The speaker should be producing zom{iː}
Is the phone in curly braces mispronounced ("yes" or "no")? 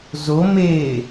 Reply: yes